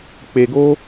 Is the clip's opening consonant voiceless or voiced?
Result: voiceless